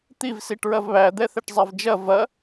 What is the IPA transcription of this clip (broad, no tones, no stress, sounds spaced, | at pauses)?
t̪ i v s i ʈ ɹ ɐ v β æ d̪ ɛ θ ɛ ʈ zˤ æ v d͡ʒ ɐ v ɐ